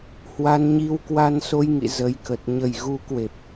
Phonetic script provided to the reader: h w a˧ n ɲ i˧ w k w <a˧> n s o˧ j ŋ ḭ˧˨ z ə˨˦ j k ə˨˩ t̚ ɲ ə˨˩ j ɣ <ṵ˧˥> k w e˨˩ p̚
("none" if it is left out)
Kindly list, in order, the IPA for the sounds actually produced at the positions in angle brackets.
a˧, u˨˦

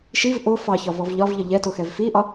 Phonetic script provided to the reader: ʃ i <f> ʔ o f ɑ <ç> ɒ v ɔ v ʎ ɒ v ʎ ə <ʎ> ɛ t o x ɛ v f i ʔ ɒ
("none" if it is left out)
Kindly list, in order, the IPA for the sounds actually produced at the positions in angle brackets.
v, ç, ʎ

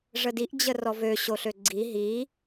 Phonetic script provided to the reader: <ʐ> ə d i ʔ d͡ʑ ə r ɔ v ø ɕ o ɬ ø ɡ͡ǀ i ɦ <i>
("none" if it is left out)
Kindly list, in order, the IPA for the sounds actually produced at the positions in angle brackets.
ʐ, i

